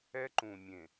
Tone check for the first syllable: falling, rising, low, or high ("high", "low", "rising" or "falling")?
high